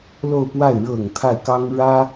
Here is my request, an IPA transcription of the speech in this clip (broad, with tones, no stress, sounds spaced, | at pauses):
l o˥˧ ʊ̯ p w a˥˩ ɪ̯ ɻ ɤ˨˩ ŋ t̪ʰ a˥˩ ɪ̯ k ɑ˥ ŋ ɻ ä˥